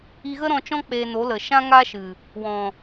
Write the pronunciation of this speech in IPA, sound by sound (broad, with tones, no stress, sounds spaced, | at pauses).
i˧ ɣ ə˦ ɾ ɔ̃˧ t͡ʃ ɔ̃˦ k͡p eː˧ n o˨˦ l ə˨ ʃ ã˦ ŋ a˦ ʃ ɨ˨ | w ɔ̃˨